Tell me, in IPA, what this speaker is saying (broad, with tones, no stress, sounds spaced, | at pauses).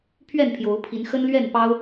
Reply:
pʰ ɥ ɛ˥˨ n pʰ j o˨˦ ʊ̯ pʰ i˨˦ n x ə˦ n l ɥ ɛ˥˨ n p ɑ˦ ʊ̯